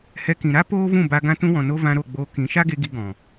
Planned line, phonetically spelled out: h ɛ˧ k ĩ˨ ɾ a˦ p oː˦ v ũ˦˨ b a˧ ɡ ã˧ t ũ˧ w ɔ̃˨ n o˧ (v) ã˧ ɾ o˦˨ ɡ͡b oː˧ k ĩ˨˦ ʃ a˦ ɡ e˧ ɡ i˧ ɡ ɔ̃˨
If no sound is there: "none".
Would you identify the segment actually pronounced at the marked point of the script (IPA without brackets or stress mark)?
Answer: v